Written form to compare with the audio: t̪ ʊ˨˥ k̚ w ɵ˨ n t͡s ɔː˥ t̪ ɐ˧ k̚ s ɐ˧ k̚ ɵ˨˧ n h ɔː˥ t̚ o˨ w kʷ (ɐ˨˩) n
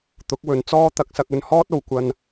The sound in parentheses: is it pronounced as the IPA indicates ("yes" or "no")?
no